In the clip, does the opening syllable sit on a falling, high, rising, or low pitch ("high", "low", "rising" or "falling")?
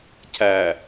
low